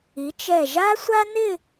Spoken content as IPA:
i˩˧ t͡ʃ ɛ˧˩ ʒ a˥ sʷ a˥ n ɪ˥˧

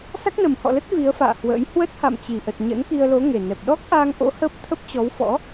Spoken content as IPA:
s a˦˥ k̚ n ə˨˩ m h ɔ̰˧˨ l ə˦˥ t̚ v i˨˦ ə̯ f a̰ː˧˨ h w ə̰ː˧˥ j h w ə˦˥ t̚ h a̰˧˨ m t͡ɕ i˨˩ ʔ ə˨˩ t̚ ɲ ə̰˧˥ n k i˧ ə̯ l o˨˦ ŋ e˨˩ n ɛ˨˩ p̚ ɗ ɔ˦˥ k̚ ʔ a˧ ŋ ʔ o̰˧˥ h əː˦˥ p̚ t̪ʰ ə˦˥ p̚ t͡ɕ ɔ˨˦ w f ɔ̰˧˥

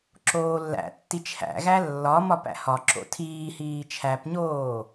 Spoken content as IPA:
ǁ oː lː æ̰ tː i t͡ʃʰ æ̰ ɣ æ lː ɒ m ɒ p æ̰ h ɒ ǁ o̰ tʰ iː h iː t͡ʃʰ æ p ɲ oː

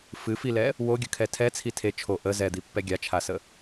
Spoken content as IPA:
f ɨ f i l ɛ | w o ɡʲ ə kʰ ɛ tʰ ɛ t͡sʰ i tʰ e t͡ʃʰ o ʔ ə z ɛ d̪ i pː ɛ ɡʲ a t͡ʃʰ a s ə

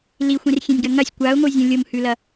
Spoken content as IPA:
l i xʷ ĩ r xʲ ẽ nʲ ɡ ɐ ŋ ɐ sʲ kʷ a ʊ̯ ŋʷ ɨ zʲ õ lʲ o m h ʉ l ɐ

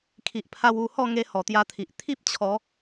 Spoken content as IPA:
kʰ i˨ ʔ pʰ a˧ w u˧ h ɔ˥˧ ŋ e˧ h ɔ˨˩ t̪ j a˧ t̪ʰ i˨ ʔ t̪ʰ i˦ p̚ t͡ɕʰ ɔ˨˦

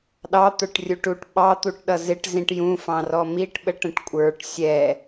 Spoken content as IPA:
ɗ ɑ t̪ ə˞ ʈ rʲ u ʈ u ʈ ɓ ɑ t̪ u ʈ ɗ ʌ z ɪ ʈ z ĩ ʈ j ũ f ɑ̃ r ɔ m i ʈ ɓ ə ʈ ə̃ ʈ kʷʼ ə˞ ʈ sʲ ɛ

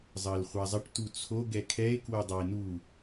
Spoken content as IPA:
zˤ əː l χʷ a zˤ ə ʈ t u t͡sʰ o ɡ ɛ kʰ ɛ e̯ k w o dˤ a e̯ n u

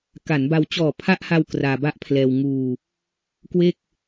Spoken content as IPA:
k a˩˦ n b a˧ w t͡ɕ ɔː˨˩ pʰ a˦˥ ʔ h a˧ w k r aː˧ b a˥˩ ʔ pʰ l ɛː˧ w ŋ uː˧ | k w e˥˩ k̚

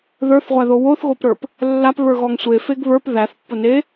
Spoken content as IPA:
ð ə˞ θ ʁʷ æ ð o w o θ ɣ o p ɾ ə˞ p | lː a p β ə˞ ɣ ɔ ŋ sʷ e f e ɡ β ə˞ p ð æ θ pː ʊ n e

